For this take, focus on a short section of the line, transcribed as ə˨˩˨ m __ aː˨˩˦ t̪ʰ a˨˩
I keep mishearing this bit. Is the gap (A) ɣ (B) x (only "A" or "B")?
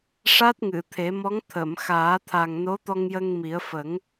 B